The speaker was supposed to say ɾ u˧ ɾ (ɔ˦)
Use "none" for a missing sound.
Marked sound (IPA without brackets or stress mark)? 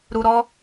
ɔ˦